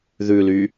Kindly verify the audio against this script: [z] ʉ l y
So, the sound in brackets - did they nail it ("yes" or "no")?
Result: no